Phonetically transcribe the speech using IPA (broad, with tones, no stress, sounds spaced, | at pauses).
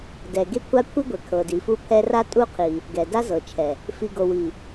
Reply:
d ɛ˨ ɡ e˦ kʷʰ a˦ kʷʰ i˦ ɡʷ ɛ˨ kʰ ɤ˨ d i˨ f u˦ pʰ ɛ˦ r a˦ tʼ u˦˨ qʰ i˨ | ɡ ɛ˨ d a˦ z ɤ˨ t͡ʃʰ ɛ˨ | f i˨ ɡ o˨ w i˨